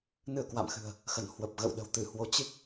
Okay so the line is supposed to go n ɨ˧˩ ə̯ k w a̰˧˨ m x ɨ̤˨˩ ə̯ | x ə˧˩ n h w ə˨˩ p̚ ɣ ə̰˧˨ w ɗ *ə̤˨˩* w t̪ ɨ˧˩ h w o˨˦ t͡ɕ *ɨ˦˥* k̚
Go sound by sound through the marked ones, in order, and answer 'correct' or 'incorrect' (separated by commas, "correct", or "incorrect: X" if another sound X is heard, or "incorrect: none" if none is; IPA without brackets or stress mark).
correct, correct